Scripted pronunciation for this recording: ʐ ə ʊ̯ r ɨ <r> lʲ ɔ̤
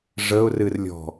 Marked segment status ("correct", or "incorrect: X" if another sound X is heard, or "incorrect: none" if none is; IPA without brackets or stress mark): correct